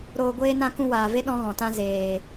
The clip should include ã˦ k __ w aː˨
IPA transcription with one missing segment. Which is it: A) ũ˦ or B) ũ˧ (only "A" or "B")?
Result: B